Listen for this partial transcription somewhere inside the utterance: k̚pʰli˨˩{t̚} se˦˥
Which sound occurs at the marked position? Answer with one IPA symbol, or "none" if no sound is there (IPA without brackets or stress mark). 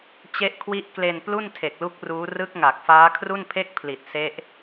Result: t̚